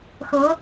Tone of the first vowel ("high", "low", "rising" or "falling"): rising